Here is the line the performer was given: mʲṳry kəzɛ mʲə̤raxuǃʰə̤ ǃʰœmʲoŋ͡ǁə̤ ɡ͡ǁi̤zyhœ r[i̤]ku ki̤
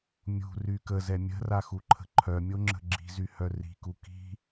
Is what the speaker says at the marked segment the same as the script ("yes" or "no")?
yes